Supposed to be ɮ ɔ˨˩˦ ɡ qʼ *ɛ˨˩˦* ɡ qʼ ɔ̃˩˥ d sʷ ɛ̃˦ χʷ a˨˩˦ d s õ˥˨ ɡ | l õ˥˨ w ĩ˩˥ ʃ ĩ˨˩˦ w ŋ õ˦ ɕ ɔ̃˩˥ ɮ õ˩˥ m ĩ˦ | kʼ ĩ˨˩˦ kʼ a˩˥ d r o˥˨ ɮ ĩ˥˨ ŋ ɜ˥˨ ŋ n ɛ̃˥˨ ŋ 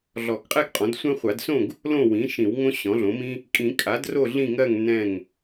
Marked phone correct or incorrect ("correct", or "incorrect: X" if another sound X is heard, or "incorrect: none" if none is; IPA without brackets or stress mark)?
incorrect: ɛ˥˨